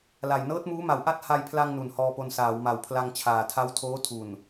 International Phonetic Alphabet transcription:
l a˨˩ j n ɤː˦˥ t̚ m uː˦˥ m a˨˩ w ʔ a˥˩ t̚ h a˧ j pʰ l a˧ ŋ n u˨˩ n h ɔː˧ p o˧ n s aː˩˦ w m a˨˩ w pʰ l a˧ ŋ t͡ɕʰ aː˨˩ tʰ a˦˥ w tʰ oː˦˥ tʰ u˨˩ n

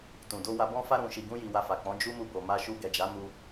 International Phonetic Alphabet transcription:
t ũ˨ d o˧ w a˧ b ɔ̃˦ f a˦ ɾ ũ˧ ʃ i˧ ɡ ũ˦ j i˧ w a˧ f a˨ k͡p ɔ̃˨˦ d͡ʒ u˧ m u˧ b o˨ m a˧ ʃ u˧ ɡ ɛ˨ d͡ʒ a˨˦ m u˦

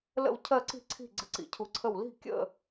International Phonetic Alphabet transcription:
l ə̰˥˧ w cʰ ɜ˥˧ ǀ i̤˥˧ ǀʰ i̤˥˧ ɡ͡ǀ ə̰˥˧ ǀ ḭ˧˥ cʰ u˧˥ ǀʰ ə˥˧ w l i̤˥˧ kʲ ə̰˥˧

